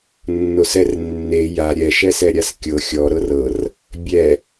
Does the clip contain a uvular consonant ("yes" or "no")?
no